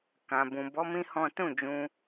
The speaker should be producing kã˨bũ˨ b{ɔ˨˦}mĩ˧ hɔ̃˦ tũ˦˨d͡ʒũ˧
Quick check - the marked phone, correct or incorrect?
correct